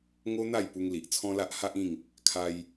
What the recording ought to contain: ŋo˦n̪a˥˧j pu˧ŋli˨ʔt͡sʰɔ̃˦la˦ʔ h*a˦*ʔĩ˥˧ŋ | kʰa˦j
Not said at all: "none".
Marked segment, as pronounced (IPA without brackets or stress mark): a˦